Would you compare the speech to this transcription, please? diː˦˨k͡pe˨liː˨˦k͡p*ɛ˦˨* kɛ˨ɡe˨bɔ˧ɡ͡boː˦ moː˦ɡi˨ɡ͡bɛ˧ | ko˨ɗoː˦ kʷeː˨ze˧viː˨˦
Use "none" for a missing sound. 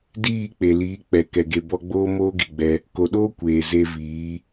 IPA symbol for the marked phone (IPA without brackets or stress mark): ɛ˨